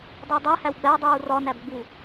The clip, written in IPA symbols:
dˤudˤe hæwɡ͡bædˤuː rɒ næbɡ͡bu

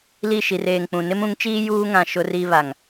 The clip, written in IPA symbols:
li˦˨ʃi˨reː˨ŋk͡pũ˨ nɪ˦mũ˨˦ŋt͡ʃiː˦ juː˦ŋã˨ ʃʊ˦ri˦βa˨ŋ

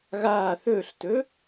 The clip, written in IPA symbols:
ɣaː θɵːɬtɵ

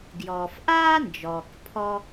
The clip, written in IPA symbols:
ɡjɔː˩fʔaː˥ nd͡ʒɔː˩kpʰɔ˧

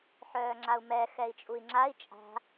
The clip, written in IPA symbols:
ħœːŋ͡ǁau̯mɛ xɛi̯t͡ʃʼui̯ŋ͡ǁai̯ t͡ʃʼa̤

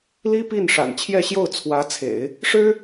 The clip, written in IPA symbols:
li˥pi˥˩n ʂa̰˨˩nt͡ɕʰjɛ˥˧ɕjo˥˩ʊ̯ t͡sʰwä˧˥t͡sʰḛ˨˩˦ɪ̯ | ʂɻ̩˥

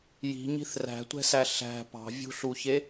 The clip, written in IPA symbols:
ji̤ɲi̤θ ræ̤tʷɛ̤sæ ɬæ̤ pɑ̤vʲṳɬuçe

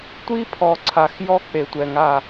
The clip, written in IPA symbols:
tʷi˦pʰɔ˨ ǀʰa˨x jɔ˦k͡pe˨tʷɛ˨ŋa˦˨

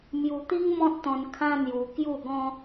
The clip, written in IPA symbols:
mju˧t̪i˦ŋmɔ̃˦t̚t̪ɔ̃˧n kʰã˦n̪ju˧ kju˥˧ɡɔ̃˦

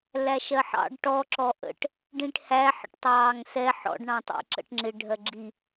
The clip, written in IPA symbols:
læʃɜħɑ̰ɖ ʈɔ ǁɔʔə̰ʈ | ɖĩʈhæ ħə̰ʈtˤɑːŋsɛ ħɔ̰ɖ ɳɑ̃tˤɛ̰ǁə̰ʈŋ͡ǁɪ ɖʱɜɡ͡ǁi

